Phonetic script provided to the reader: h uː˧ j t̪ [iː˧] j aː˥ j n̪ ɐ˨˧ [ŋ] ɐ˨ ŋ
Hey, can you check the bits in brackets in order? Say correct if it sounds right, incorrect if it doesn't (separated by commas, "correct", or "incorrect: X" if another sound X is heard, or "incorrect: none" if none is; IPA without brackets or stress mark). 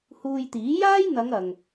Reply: incorrect: iː˨˥, correct